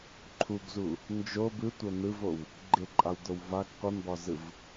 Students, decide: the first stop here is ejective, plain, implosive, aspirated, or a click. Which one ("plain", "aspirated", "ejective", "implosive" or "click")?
click